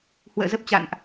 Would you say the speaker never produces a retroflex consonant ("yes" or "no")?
yes